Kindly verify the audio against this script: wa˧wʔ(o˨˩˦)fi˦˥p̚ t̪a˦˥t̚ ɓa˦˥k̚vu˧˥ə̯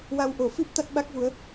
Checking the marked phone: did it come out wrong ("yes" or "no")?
no